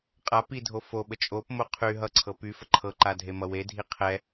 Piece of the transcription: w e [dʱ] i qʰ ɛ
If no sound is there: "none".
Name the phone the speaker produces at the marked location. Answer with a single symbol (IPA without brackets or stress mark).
dʱ